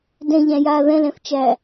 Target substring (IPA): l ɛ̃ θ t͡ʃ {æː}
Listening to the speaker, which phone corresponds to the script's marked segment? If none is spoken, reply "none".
æː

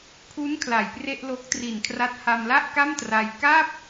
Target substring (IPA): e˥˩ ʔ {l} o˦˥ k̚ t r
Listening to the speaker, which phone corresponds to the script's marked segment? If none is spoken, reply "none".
l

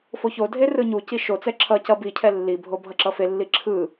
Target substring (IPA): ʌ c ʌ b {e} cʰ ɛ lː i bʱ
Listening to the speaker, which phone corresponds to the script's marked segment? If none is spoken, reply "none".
i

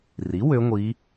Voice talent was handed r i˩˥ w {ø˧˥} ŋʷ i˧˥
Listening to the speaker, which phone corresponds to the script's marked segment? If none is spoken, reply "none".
ø˧˥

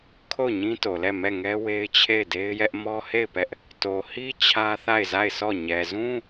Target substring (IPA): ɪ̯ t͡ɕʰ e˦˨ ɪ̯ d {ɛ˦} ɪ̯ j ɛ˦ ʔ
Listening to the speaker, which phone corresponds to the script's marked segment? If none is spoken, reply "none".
e˦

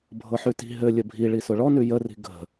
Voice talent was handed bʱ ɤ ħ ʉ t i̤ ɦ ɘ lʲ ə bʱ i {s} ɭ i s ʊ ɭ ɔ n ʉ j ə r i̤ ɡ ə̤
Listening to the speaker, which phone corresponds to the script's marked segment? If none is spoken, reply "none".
none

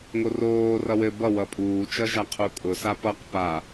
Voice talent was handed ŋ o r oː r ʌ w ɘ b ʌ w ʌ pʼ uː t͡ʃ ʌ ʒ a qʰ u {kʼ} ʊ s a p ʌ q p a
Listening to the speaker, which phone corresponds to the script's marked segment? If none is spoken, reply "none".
kʼ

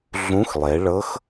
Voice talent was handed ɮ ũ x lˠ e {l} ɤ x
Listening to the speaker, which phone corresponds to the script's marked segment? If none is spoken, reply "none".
ɭ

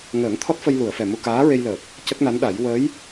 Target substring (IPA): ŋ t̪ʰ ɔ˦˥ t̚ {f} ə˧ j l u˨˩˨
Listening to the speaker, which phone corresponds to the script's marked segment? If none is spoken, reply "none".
f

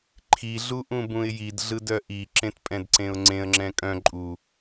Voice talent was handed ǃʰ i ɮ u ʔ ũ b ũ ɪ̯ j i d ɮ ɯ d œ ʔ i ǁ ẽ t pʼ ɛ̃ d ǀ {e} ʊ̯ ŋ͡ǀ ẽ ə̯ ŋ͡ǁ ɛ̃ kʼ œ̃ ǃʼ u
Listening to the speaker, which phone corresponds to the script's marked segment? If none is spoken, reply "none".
ẽ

